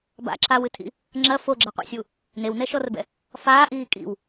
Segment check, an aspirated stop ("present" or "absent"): present